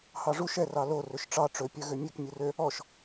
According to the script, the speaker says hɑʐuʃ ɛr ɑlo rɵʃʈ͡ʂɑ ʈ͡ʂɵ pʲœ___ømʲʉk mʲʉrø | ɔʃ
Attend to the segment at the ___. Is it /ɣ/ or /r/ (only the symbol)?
ɣ